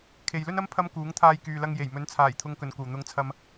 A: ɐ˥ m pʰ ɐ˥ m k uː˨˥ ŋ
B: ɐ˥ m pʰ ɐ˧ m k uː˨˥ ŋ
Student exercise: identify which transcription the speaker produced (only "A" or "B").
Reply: A